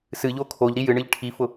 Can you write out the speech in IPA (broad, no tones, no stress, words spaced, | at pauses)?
sɨʎo kʰoʎɾi jɨɳɨʎ ʈʰifʊ